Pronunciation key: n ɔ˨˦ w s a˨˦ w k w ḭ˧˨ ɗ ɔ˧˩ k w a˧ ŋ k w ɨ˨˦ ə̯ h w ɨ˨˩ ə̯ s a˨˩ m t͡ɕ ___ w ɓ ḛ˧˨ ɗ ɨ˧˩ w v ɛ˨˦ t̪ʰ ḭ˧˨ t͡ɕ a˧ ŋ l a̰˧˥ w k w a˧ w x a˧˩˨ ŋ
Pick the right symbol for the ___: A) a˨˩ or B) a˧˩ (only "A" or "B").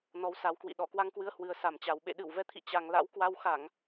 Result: A